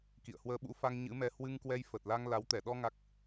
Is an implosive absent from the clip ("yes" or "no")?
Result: no